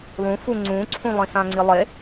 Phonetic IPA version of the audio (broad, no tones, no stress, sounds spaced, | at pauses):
lˠ ũ f u ŋ͡ǀ ũ ǀʰ ũ lˠ ĩ s ã ŋ͡ǀ i lˠ e